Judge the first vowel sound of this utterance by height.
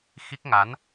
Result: high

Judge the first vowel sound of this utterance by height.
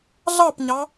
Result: low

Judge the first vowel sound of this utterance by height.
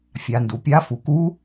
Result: low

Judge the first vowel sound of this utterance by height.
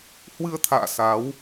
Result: high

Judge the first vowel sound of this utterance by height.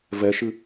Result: mid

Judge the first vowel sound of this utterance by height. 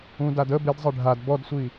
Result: high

